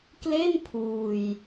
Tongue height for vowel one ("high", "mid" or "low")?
mid